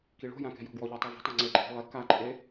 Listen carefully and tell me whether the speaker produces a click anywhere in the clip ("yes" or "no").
yes